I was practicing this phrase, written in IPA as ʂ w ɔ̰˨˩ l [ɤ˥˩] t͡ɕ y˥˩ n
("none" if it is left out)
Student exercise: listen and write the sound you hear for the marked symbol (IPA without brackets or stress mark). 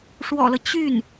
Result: ɤ˦